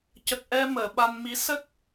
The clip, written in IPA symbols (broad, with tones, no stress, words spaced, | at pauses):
cə˨˩k̚ʔɛ˧ məː˨˩˨ɓa˧nmi˧˥ sə˦˥k̚